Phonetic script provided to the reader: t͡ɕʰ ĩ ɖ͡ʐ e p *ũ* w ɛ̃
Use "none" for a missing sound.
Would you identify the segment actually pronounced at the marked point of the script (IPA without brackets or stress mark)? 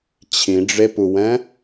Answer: u